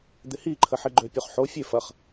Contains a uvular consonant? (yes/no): yes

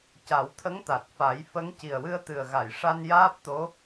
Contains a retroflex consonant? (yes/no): yes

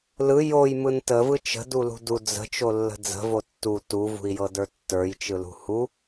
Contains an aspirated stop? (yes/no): no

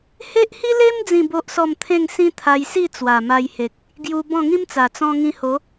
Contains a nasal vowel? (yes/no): yes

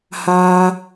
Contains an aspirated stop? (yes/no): no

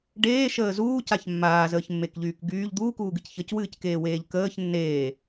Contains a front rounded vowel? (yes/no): yes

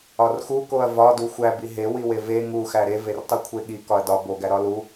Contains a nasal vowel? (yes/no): no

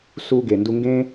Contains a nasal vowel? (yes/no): yes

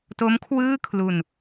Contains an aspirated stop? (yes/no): yes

